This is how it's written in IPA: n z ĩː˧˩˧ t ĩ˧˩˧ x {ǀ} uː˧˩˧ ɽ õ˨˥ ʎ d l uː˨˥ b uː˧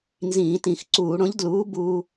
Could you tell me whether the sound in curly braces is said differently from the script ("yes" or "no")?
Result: no